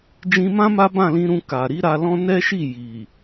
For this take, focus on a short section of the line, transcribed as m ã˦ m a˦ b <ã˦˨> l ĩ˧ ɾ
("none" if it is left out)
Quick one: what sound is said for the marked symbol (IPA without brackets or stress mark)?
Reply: ã˦˨